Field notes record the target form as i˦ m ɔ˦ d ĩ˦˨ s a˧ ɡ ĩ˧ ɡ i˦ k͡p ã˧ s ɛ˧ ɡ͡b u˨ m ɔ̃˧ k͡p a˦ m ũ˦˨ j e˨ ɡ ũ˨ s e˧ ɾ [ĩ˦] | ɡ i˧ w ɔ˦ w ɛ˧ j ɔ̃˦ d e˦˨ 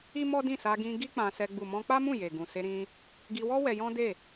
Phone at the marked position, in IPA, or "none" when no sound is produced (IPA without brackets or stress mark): ĩ˧